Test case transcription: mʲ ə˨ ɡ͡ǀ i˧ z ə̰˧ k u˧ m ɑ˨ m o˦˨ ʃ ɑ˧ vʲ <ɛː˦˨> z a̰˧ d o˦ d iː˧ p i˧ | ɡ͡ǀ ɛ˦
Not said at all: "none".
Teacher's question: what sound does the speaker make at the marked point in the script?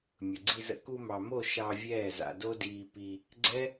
ɛː˦˨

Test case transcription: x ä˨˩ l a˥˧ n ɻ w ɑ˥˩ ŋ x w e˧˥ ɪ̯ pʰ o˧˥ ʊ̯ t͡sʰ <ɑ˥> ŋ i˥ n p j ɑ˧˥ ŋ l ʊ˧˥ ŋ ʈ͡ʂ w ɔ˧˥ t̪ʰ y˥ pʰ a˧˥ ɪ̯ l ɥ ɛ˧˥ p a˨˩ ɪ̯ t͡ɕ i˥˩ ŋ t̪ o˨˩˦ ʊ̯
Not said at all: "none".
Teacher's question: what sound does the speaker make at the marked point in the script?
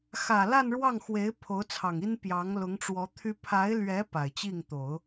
ɑ˨˩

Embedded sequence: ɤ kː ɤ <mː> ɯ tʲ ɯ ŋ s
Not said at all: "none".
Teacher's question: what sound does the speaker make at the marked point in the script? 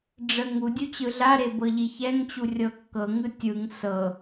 ŋ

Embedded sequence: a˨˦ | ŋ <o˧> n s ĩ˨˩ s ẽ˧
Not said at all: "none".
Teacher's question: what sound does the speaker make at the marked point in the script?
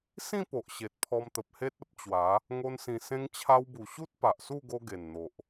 o˧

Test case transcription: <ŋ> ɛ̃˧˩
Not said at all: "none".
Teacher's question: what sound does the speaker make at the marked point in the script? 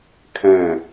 kʰ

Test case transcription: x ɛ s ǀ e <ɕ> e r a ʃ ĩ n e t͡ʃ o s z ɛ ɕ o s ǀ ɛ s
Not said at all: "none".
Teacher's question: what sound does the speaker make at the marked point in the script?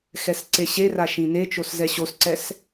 ɕ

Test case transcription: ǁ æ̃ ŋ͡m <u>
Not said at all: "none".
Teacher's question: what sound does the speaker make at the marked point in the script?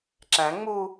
u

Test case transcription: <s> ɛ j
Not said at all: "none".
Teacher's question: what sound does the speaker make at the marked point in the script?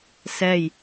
s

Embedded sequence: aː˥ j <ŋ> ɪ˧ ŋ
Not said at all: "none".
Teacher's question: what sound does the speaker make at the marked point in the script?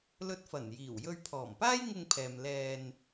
ŋ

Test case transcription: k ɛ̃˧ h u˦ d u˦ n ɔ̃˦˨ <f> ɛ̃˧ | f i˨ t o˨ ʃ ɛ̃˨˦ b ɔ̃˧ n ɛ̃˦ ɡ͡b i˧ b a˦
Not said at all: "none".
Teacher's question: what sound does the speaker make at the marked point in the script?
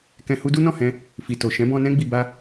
h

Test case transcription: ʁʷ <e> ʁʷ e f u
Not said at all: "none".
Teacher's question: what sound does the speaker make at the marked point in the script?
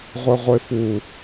e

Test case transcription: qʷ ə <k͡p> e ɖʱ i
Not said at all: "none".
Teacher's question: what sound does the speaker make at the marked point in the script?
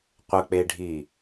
k͡p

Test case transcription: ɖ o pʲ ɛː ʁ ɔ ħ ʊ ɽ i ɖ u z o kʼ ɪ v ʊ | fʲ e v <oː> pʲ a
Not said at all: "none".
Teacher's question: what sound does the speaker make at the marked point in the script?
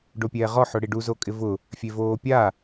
oː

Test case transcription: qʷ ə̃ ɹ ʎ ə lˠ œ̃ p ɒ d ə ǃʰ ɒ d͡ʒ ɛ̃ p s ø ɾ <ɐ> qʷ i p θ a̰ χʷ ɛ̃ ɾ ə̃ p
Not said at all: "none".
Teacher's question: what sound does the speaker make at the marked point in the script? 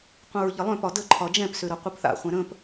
ɐ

